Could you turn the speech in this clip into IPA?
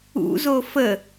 ṵ z o f ə

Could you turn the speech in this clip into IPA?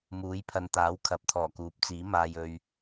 m uː˨˥ j pʰ ɐ˨ n t̪ aː˨˥ w kʰ ɐ˨˥ p̚ t̪ʰ ɔː˨˩ k uː˨˥ p̚ t͡s iː˨˥ m aː˨ j ɵ˨ ɥ

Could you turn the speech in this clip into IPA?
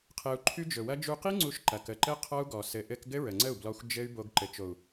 qʰ ɘ˧ u̯ ǃʰ y˦ d͡ʒ ɵ˨ w ɐ˦ d͡ʒ u˧ q i˦ ŋ͡ǀ u˦ ʃ ǃ ɐ˨ k ə˨ ǃ ɘ˦ qʰ ɔ˦ u̯ ɡ ɔ˨ s ɘ˨ ʔ ɘ˧ k ɡ ɘ˦ ɹ ə˨ ŋ͡ǀ ə˦˨ u̯ b l ɔ˧ xʷ d͡ʒ ɘ˦ y̯ b o˧ ɡ ǃ ɘ˨ t͡ʃ o˨ u̯

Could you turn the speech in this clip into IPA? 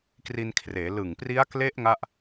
k r i˧ n kʰ r eː˩˦ l ɯ˨˩ ŋ p r i˦˥ a̯ k l e˦˥ ʔ ŋ a˥˩ ʔ

